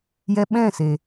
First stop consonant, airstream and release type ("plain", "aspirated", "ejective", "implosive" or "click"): implosive